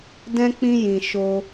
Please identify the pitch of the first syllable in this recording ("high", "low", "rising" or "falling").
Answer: high